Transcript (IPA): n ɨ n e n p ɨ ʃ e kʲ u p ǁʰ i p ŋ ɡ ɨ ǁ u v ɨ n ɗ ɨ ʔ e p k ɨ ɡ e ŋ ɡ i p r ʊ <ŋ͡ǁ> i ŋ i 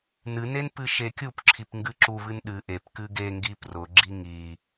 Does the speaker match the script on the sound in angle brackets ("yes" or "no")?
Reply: no